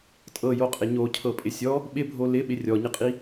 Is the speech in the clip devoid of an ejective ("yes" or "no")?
no